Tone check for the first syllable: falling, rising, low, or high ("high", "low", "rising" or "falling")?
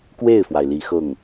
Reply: falling